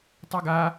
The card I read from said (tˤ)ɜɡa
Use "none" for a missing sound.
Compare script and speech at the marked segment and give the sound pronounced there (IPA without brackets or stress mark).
tˤ